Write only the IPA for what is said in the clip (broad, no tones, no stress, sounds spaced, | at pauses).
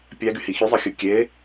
pʲ æ ɡ y h i ç y zˤ ɯ xʲ ɯ kʲ e